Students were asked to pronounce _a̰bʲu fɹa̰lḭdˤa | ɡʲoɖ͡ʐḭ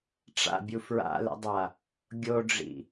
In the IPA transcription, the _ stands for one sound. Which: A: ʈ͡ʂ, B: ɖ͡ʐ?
A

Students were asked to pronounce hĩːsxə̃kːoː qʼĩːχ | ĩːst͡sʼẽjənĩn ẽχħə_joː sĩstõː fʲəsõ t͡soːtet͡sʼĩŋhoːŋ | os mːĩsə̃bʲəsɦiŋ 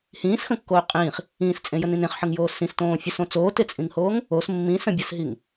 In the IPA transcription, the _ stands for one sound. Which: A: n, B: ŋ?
B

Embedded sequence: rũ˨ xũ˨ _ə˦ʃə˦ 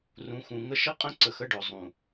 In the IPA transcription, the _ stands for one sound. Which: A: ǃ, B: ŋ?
B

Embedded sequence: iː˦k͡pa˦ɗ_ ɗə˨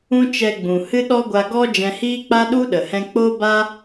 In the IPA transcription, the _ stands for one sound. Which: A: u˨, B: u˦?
B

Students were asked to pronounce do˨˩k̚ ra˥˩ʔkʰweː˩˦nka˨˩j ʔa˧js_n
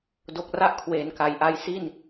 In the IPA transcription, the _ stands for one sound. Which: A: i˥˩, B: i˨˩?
A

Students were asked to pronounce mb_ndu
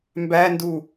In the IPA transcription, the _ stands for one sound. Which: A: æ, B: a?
A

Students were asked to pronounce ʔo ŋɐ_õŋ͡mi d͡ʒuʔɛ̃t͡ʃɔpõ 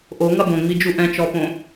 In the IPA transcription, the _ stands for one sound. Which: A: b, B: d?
A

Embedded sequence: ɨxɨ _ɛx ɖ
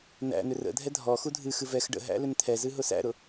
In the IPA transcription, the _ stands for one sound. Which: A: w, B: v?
B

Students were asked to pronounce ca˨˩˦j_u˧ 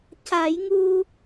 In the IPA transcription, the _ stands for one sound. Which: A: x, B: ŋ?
B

